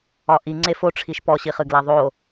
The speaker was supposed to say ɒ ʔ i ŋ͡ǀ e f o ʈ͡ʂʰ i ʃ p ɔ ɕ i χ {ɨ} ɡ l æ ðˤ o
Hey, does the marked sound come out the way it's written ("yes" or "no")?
yes